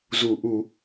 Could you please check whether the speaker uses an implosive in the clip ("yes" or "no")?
no